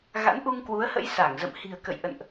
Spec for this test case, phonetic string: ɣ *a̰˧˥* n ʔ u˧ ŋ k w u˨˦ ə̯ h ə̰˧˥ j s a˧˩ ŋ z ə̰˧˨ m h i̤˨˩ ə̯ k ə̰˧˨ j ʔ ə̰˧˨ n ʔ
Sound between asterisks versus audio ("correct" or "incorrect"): correct